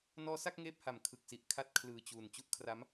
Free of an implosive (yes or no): yes